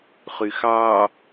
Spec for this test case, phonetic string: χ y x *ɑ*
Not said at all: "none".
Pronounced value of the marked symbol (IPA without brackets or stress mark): ɑ